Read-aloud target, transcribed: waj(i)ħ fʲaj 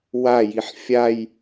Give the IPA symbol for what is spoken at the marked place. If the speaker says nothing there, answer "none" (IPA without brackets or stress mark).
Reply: i